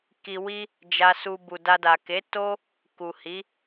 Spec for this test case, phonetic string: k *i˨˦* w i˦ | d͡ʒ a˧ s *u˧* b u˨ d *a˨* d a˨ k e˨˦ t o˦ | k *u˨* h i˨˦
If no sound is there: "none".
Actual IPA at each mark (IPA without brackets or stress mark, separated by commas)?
i˧, u˧, a˧, u˨